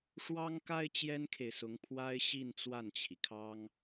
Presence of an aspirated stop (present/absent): present